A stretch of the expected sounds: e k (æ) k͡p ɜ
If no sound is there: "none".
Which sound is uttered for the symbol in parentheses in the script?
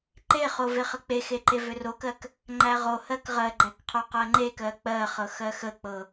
ɜ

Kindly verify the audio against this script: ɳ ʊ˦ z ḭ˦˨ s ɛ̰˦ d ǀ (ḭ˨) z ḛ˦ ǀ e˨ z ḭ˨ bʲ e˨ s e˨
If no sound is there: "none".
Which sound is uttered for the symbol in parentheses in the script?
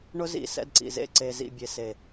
ḭ˨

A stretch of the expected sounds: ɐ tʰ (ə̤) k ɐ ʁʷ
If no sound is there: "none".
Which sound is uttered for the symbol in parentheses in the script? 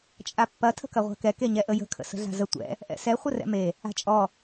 ə̤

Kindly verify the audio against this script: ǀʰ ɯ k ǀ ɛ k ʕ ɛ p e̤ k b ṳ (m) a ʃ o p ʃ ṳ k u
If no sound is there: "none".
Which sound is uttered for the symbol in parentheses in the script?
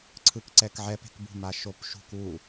m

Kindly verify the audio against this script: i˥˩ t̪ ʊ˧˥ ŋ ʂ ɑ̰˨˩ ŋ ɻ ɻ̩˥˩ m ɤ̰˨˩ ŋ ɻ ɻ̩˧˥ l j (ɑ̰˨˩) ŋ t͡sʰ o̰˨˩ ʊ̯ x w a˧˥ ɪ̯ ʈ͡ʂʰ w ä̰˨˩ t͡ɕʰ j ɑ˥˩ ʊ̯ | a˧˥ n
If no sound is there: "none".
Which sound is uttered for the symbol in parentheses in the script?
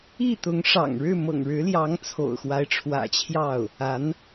ɑ˧˥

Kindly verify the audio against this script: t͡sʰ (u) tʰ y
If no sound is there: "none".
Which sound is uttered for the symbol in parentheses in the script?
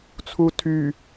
u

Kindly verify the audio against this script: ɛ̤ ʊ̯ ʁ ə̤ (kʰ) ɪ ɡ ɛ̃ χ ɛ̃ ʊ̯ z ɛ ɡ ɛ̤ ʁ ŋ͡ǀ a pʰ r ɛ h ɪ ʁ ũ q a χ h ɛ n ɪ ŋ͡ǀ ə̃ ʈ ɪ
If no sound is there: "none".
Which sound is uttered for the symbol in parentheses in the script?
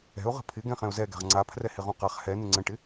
pʰ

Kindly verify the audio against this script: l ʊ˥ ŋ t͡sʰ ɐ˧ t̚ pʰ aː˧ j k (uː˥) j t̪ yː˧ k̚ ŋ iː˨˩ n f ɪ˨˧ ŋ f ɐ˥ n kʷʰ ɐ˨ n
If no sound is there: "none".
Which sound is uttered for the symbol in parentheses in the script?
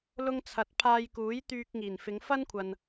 uː˨˥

